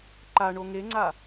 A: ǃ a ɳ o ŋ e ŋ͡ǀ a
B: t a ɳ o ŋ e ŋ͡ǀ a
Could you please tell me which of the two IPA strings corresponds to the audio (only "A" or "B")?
A